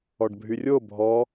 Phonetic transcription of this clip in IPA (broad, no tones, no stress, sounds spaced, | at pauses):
ɔ ɖ bʱ y rʲ o bʱ ɔ